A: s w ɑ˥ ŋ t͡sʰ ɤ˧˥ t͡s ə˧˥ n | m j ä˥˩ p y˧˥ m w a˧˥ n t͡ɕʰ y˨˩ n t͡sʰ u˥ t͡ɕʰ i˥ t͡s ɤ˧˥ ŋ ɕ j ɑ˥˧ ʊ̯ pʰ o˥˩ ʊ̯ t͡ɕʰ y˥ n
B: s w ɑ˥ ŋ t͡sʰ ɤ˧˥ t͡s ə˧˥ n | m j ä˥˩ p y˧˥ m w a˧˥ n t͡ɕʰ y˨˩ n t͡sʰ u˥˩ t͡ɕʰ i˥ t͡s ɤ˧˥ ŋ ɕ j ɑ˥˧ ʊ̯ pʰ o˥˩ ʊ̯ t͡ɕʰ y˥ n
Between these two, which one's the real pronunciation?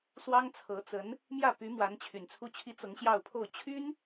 A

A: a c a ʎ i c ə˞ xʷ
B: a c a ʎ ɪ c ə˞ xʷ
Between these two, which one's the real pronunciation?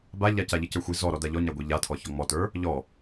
A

